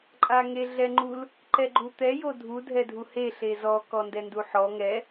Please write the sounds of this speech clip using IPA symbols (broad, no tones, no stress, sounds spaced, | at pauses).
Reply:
ǃʼ a ŋ e ɮ ɛ ŋ͡ǃ u l | ǃ ɛ ɡ͡ǃ u t̪ ɛ j o dʱ u dʱ ɛ dʱ u h e ɬ e z ɔ k ɔ n d ɛ n d u ħ ɔ ŋ ɛ